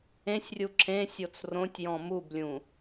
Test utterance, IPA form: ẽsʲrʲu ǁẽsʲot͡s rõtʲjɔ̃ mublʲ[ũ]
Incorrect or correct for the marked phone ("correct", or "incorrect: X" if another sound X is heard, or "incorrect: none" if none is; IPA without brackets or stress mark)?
correct